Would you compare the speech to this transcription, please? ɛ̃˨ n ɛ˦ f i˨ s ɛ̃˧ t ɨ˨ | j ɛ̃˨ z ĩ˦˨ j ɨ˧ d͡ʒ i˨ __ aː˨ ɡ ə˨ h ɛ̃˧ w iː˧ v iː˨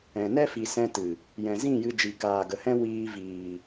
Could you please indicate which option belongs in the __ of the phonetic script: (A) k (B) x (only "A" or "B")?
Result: A